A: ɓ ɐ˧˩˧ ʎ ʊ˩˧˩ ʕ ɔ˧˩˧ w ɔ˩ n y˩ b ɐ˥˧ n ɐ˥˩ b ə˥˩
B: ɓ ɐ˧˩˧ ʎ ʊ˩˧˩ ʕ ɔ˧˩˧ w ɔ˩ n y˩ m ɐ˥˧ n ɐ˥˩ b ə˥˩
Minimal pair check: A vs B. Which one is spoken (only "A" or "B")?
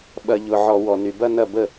A